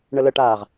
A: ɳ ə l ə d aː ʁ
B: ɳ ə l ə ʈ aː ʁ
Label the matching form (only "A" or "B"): B